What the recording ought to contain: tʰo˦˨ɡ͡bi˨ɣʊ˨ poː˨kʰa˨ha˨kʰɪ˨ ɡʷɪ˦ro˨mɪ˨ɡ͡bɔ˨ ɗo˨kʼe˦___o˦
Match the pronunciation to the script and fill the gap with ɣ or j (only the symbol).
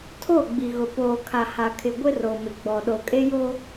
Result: j